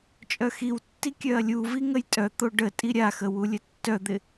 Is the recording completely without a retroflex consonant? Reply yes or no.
no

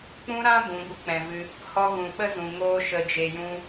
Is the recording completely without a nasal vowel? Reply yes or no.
no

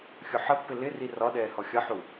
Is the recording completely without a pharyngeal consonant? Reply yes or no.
no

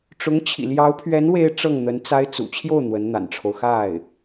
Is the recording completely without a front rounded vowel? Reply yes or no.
yes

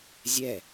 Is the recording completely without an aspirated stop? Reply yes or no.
yes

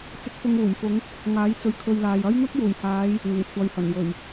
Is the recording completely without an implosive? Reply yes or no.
yes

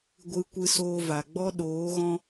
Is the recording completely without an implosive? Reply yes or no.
no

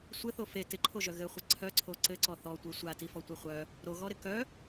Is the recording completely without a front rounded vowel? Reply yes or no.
no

